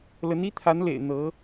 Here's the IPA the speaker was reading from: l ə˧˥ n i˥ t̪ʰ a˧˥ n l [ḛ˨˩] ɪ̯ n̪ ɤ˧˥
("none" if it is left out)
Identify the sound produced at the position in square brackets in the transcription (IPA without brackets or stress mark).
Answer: ḛ˨˩